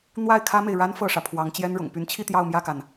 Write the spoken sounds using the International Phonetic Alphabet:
n̪ w a˥˩ ɪ̯ kʰ ä˥ m e˨ ɪ̯ ɻ a˥ n f ɤ˥˩ ʂ ä˩ pʰ w ɑ˧˥ ŋ t͡ɕ j ɛ˥ n ɻ ʊ̰˨˩ ŋ p y˧˥ n t͡ɕʰ i˥˧ t̪ j ɑ˥˧ ʊ̯ m j ä˥˩ k a˩ n

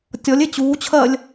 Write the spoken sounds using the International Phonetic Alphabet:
tʲ ɔ lʲ e t͡ɕ uː t͡ɕʰ ɜ lʲ

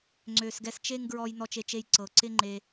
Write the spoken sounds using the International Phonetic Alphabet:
ŋ͡ǀ ø˨ s ɡ ɛ˧ s t͡ʃ e˦ ŋ ɡ ɹ ɔ˧ j n ɔ˧ t͡ʃ e˧ t͡ʃ e˧ j ǀ ɤ˨ ǀ ɪ˦ ŋ͡ǃ e˧

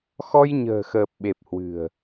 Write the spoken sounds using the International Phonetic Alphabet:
x ɔ˧ j ɲ ə̤ː˨˩ x əː˨˩ p̚ ɓ e˨˩ p̚ h w ɨ̤˨˩ ə̯

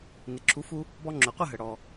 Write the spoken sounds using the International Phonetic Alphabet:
n ɪ˩ ǁʰ u˩˥ f u˧ | b ɔ˧ ŋ͡ǁ ʊ˩ qʷ ə˥˩ ɦ ə˩ ɽ ɔ˩

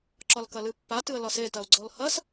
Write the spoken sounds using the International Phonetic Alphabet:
ǁ ɒ l k ɐ l ɨ pː a t ɨ ə̯ l ɒ s e t ɐ ʊ̯ ɡ͡ǀ ɔ l h ɐ s

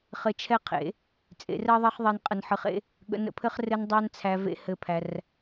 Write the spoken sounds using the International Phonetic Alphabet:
χ ɘ˧ t͡ʃʰ ɛ˦ qʰ ḛ˨˦ | t͡sʼ ḛ˨˦ r ɜ˦ ðˤ ɜ˦ χ ðˤ e˧ n qʼ ə˧ n ħ ɨ˧ χ ḛ˦ | ɠ ə̰˧ n ə̰˦ pʰ ɘ˦ χ r ɘ˦ n dˤ æ˦ n t͡sʰ æ˧ v ḛ˦ h ɘ˦˨ pʰ æ˧ r

